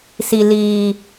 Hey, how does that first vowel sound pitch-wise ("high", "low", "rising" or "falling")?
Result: low